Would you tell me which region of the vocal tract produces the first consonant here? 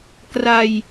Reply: velum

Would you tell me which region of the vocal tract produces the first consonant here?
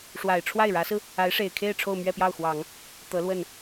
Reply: retroflex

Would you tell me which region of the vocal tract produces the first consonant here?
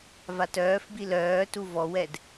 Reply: lips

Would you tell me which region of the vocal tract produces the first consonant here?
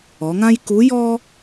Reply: velum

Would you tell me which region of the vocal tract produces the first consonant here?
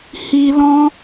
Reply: throat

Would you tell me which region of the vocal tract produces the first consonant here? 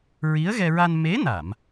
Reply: tongue tip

